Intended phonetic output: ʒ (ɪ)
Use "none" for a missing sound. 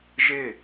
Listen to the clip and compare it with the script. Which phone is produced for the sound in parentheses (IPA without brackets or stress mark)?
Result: ɪ